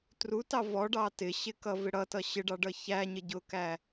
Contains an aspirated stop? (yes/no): no